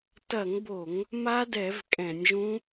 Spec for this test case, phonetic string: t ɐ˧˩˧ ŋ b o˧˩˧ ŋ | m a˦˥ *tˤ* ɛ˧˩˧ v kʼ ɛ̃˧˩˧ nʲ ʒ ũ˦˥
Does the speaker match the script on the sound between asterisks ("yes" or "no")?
no